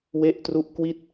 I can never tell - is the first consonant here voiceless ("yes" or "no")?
no